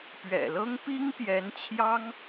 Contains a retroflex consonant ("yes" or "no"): no